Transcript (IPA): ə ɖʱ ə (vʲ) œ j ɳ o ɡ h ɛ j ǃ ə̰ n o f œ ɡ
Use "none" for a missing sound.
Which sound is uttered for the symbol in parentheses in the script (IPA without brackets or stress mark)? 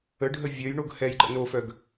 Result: vʲ